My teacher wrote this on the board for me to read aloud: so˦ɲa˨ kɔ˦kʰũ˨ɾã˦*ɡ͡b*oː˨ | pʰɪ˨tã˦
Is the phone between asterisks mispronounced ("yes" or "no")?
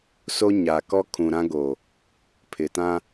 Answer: yes